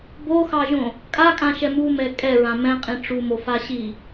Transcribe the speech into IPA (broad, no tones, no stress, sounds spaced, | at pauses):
b o x ɑ ʒ õ | kʼ a kʼ ã ʃ ɛ m u m ɛ kʼ ɛ ɹ ã m ɛ̃ qʼ ĩ ʈ͡ʂ u m o f a ɕ i